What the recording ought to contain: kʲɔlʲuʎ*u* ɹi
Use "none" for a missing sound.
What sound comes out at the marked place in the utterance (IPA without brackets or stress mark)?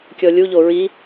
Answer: o